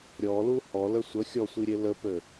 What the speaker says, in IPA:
ɾʲ ɔ l u h ɔ l ə sʷ ə xʲ ɔ sʷ i ɾʲ e l ə p ø

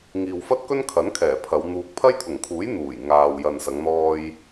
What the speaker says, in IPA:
ŋ iː˨ w f ɐ˥ t̚ k ɵ˥ n kʰ ɐ˨˥ n kʰ ɛː˨˩ pʰ ɐ˨˧ w n̪ uː˧ k̚ pʰ ɐ˥ j t̪ʰ ʊ˨˩ ŋ kʰ uː˨˥ j n̪ uː˨˩ j ŋ aː˨ w j ɐ˨ n s ɐ˨˧ ŋ n̪ ɔː˧ j

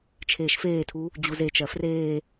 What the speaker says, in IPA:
t͡ʃʰ eː ʃ f eː tʰ u | d͡ʑ u z e t͡ʃ ɜ f r eː

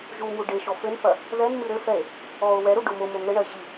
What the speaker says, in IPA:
ʒ u m u ɖ e ʃ ɔ f ɘ n f ɐ | ð ɛ n m ɨ ɾ ɘ f ɛ e̯ | ɔ o̯ w ɛ ɾ u ɖ o m o m o ŋ ɘ ɳ ɐ e̯ ʑ i

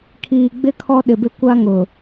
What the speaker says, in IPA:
kʰ iː˨ ɡ͡b ɪ˦ kʰ ɔ˦ ɗ ɪ˨ b ɪ˦ kʷ a˦ ŋ ʊ˨

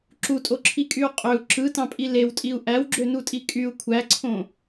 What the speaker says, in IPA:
ǁ u tʼ o ǁʰ i kʼ y u̯ qʼ ø u̯ ǁ ɯ t ɑ̃ pʼ i l e w tʼ i u̯ ʔ æ w ɡ͡ǁ ø n u tʼ i kʼ y u̯ kʷʰ æ ǀʰ õ

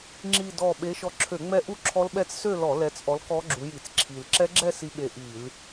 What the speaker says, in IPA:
ŋ͡ǁ i˨˩ d ɔ˨˩ ɓ e˨˦ ʃ ɔ˨˦ ǁʰ ø˧˩˧ ŋ͡m ɛ˦˥ ʔ u˥˧ ǁʰ ɔ˦˥ l ɓ ɛ˥˧ t͡s s ø˥˧ l ɔ˧˩˧ l ɛ˨˦ t͡s ʔ ɔ˨˦ l k ɔ˦˥ ɡ͡ǁ u˨˦ j i˧˩˧ t͡s ǁʰ i˨˩ l ǁ ɛ˦˥ ɡ͡ǁ ɛ˥˧ s i˨˦ ɓ e˨˩ ʔ i˧˩˧ l

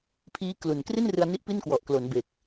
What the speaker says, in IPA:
pʰ iː˦˥ k l u˨˩ n k r i˥˩ n r ɯ˧ a̯ n i˦˥ ʔ p i˥˩ n k w ɔ˨˩ ʔ k l o˩˦ n b e˨˩ k̚

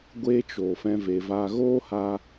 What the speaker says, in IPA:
ɡʷ e˦ t͡ʃ o˨ f ɛ̃˦ v e˧ v aː˦ ɣ oː˦ h a˧

